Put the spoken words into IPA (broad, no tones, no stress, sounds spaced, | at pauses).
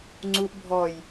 ŋ͡ǀ u ʔ bʱ ɔ j